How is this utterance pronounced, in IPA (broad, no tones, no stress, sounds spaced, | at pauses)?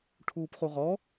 ʈʰ uː p χ u ʁ ɔ